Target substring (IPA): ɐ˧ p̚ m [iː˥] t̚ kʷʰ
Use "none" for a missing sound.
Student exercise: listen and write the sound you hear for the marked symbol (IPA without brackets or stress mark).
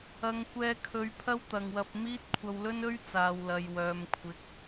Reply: iː˥